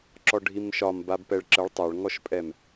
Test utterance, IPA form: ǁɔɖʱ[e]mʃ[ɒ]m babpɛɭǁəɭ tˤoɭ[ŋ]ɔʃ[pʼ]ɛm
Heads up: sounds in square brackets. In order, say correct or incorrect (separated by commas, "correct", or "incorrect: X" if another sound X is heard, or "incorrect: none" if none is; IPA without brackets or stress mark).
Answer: incorrect: i, correct, correct, correct